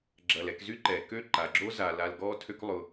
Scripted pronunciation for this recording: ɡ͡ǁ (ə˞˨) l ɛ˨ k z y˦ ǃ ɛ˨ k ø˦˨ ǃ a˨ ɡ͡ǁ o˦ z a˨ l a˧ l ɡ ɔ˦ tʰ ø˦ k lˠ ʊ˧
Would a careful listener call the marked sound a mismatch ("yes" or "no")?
yes